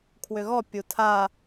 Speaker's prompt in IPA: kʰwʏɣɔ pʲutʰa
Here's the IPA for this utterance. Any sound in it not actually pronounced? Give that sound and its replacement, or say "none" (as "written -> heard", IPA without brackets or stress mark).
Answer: none